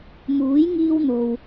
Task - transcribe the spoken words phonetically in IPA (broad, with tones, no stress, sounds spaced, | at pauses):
m uː˨˥ j ŋ iː˥ w n̪ o˨ w